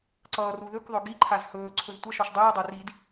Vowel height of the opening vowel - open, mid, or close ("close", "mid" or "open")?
mid